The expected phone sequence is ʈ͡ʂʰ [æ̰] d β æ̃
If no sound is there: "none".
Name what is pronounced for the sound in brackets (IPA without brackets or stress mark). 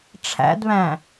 æ̰